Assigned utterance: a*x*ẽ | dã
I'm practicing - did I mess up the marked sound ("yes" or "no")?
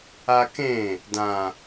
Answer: yes